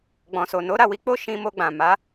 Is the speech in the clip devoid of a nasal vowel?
no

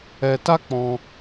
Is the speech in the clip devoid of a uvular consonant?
yes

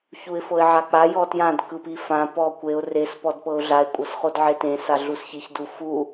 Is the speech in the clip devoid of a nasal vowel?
no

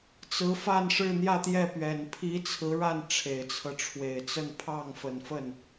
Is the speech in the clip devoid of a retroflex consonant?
no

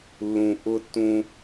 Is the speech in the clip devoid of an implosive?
yes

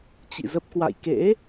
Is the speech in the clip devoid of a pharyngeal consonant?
yes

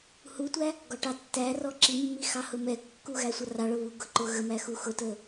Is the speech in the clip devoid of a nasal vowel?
yes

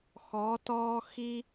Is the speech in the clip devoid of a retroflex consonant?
yes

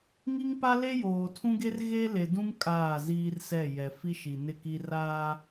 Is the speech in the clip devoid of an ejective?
no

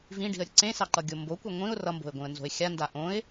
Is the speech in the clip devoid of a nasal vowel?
no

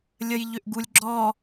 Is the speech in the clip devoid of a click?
no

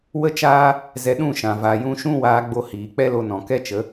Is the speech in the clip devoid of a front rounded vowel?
yes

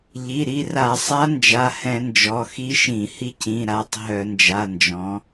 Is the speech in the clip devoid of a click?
yes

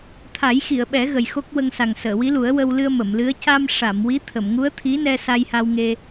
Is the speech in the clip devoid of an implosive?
no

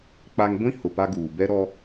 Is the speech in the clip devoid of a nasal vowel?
no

